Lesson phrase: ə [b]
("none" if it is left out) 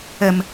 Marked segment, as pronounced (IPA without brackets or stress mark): m